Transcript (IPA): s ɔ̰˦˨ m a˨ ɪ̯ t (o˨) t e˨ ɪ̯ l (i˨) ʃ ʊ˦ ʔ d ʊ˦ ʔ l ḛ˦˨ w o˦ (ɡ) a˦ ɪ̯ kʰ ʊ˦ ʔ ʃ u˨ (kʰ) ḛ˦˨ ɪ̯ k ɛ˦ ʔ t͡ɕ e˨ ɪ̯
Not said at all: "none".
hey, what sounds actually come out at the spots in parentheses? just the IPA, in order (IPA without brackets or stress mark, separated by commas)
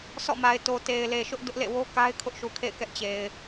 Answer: o˨, e˨, k, kʰ